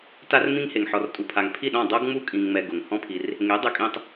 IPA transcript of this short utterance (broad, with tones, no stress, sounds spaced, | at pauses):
t a˦ r m ĩ˦ ŋ h e˨ ŋ ħ ɔ˨ r tʼ u˨ pʰ a˨ ŋ pʰ i˦˨ ɗ ɔ̃˦˨ dˤ o˦ ɡ ŋ͡m u˦ kʼ ĩ˧ ŋ ŋ͡m ɛ˧ ɡ ʊ˨ ŋ h ɔ̃˦ pʰ i˧ r | ŋ e˨˦ dˤ ʊ˧ kʼ ĩ˧ tˤ